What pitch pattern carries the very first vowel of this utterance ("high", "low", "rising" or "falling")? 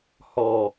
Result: low